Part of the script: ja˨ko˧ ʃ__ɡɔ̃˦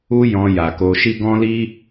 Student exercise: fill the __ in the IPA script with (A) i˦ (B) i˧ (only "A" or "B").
A